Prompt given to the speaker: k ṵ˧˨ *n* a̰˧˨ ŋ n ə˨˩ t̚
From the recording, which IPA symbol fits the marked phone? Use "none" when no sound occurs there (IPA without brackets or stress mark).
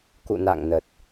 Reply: n